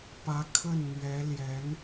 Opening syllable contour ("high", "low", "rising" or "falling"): rising